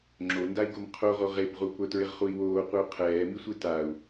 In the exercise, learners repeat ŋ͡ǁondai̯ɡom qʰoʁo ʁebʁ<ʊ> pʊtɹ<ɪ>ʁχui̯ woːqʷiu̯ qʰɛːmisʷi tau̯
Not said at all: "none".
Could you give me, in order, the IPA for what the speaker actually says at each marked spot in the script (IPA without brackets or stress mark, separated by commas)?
u, ɪ